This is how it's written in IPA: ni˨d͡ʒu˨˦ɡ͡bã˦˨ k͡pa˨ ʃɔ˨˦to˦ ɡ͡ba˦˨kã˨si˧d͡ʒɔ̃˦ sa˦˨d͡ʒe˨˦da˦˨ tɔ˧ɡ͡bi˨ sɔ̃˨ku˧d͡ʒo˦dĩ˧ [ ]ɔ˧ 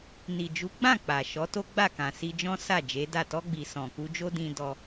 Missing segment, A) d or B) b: A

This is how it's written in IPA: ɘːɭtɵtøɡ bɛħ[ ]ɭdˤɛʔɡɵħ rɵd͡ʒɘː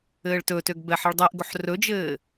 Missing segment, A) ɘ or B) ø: A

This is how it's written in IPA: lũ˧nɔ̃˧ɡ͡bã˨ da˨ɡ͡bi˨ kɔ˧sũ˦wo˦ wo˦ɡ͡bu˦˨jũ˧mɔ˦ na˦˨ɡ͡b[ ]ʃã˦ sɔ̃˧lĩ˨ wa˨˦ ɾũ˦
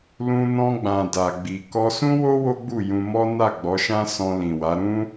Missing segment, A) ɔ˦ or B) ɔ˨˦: B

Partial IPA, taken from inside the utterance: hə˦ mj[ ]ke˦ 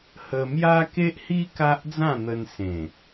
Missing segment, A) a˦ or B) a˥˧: A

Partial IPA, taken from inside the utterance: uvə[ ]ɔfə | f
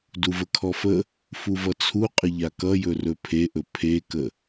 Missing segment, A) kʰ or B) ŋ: A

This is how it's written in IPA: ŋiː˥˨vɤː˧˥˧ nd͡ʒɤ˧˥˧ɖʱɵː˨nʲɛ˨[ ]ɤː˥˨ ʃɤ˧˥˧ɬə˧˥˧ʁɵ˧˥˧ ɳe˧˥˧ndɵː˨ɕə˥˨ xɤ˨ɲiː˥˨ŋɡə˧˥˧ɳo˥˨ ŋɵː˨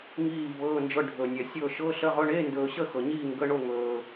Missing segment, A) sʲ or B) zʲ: A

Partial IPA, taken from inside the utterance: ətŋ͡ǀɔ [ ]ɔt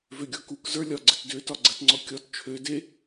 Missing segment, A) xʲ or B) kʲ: B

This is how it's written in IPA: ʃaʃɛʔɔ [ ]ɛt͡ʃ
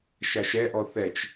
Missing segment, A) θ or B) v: A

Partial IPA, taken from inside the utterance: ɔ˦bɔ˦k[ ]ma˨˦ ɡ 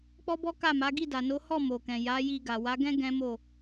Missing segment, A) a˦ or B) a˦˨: B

